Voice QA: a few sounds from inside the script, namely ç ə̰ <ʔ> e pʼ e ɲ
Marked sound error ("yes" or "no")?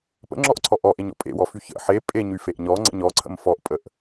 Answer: yes